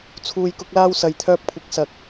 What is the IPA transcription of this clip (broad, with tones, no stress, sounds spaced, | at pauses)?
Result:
t͡sʰ uː˧ j k ʊ˧ k̚ l aː˧ w s ɐ˨ j t̪ʰ œː˧ p̚ kʷʰ ɪ˨˥ k̚ s ɐ˨ k̚